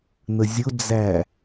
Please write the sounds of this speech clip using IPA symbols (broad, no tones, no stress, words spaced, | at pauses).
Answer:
n̪əzʲʊd͡zæ